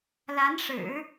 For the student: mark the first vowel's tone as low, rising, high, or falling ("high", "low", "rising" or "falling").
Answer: rising